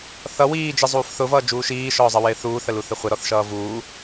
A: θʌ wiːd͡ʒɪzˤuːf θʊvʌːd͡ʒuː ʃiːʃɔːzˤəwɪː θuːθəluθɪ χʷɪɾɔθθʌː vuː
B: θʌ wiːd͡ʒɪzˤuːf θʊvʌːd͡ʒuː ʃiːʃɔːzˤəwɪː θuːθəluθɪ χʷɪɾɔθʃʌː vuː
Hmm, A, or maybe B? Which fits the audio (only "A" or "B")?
B